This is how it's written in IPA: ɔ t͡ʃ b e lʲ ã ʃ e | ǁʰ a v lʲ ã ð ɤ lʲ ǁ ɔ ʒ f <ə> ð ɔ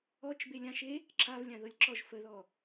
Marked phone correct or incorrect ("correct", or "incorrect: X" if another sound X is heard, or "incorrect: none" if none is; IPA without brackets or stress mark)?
correct